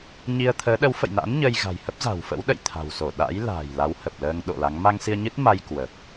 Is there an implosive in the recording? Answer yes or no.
yes